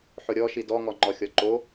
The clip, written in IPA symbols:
ħ ʊ ɾʲ ɔ ʃ i d ɔ ŋ ɔ ŋ͡ǃ ɔ xʲ ɔ ǃ o

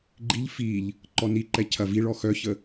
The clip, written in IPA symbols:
ɡ͡ǃ i ʎ f i ʎ | ǃ ɔ n i ǃ ɛ cʰ ɐ v i ɭ ɔ x œ ç ə

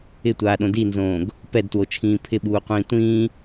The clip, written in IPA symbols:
ɪ tʷ aː ɗ õ d i n z õː ɡ | p ɛ d t w o t͡ʃʰ ĩː pʰ ɪ ɓ uː qʷ ĩː tʷ ĩː

